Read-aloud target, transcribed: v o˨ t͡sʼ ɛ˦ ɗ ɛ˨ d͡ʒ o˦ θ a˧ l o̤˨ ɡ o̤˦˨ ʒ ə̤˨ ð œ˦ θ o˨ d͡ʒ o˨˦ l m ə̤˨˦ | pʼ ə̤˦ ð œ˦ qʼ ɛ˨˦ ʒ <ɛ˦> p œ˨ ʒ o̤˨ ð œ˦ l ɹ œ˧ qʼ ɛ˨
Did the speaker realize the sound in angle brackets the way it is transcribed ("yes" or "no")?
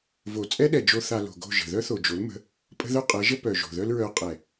no